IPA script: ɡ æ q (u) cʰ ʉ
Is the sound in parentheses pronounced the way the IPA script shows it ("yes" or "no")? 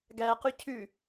no